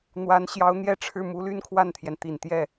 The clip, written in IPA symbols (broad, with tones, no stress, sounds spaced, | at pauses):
n̪ w a˧˥ n ɕ j ɑ˧˥ ʊ̯ n̪ j ɛ˥˧ ʈ͡ʂʰ ɻ̩˥˩ m u˧˥ l y˥˧ n kʰ w a˥˩ n t̪ʰ j ɛ˩ n t̪ i˨˩ n t̪ j ɛ˥˩